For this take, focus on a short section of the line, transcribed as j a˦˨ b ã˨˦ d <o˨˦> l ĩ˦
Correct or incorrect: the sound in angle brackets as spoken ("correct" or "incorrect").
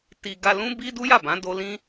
incorrect